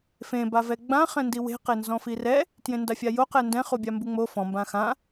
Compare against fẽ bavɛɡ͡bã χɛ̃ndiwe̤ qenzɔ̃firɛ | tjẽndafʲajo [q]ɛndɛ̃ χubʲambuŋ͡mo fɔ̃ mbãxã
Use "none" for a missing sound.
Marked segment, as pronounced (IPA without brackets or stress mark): q